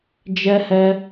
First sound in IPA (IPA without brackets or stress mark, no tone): d͡ʒ